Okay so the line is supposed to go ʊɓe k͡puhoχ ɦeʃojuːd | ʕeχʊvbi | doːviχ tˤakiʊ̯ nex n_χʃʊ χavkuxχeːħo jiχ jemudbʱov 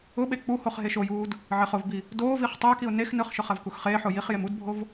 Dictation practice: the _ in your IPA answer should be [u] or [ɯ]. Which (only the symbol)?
ɯ